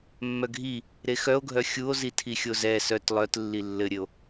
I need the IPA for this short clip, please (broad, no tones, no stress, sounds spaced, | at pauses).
mː œ ɡʱ i | ɾ e x œ o̯ ɡʱ œ xʲ u o̯ z i tʰ i xʲ o z ɛ s œ t lˠ œ t lː i lː ɘ ɾʲ ɘ o̯